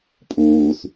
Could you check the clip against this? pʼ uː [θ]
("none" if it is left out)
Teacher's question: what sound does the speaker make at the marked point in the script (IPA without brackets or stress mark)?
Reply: θ